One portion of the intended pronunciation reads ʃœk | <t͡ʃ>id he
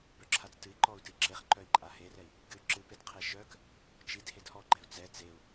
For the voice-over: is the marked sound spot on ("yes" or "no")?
yes